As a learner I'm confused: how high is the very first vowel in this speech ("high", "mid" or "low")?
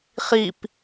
high